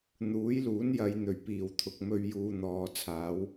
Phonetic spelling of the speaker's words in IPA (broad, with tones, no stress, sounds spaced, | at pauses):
n̪ uː˨˥ j l uː˨˥ n j ɐ˨˧ j n̪ ɵ˨˩ ɥ p iː˨˩ w t̪ʰ ʊ˨ k̚ m ɵ˧ ɥ j uː˧ n̪ ɔː˨ t͡sʰ aː˨˥ w